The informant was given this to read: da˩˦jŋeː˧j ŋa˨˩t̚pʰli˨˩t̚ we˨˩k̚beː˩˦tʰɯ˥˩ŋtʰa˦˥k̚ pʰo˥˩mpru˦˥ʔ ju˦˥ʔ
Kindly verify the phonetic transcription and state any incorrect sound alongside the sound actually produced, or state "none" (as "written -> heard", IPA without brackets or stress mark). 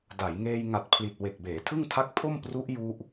none